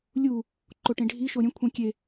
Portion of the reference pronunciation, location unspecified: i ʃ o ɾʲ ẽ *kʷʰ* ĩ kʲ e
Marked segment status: correct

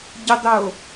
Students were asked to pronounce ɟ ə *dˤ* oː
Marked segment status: correct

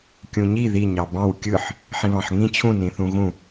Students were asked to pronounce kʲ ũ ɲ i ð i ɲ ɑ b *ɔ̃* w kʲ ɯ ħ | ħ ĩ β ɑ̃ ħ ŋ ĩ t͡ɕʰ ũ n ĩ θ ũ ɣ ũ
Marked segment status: incorrect: ɑ̃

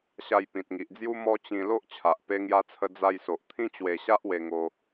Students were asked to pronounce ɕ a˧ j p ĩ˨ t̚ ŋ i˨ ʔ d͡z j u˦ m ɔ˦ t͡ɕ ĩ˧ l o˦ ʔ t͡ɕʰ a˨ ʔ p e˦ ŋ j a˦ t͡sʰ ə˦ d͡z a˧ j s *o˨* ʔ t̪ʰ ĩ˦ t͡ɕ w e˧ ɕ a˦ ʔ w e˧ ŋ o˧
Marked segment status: correct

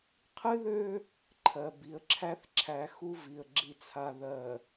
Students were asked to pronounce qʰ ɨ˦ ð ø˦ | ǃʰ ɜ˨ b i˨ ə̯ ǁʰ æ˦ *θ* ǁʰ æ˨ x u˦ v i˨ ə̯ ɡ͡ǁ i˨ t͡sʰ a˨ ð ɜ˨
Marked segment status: correct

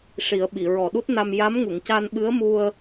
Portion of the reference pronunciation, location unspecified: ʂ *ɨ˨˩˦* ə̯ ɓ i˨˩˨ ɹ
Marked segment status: incorrect: i˨˩˦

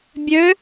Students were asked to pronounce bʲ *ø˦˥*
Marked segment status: correct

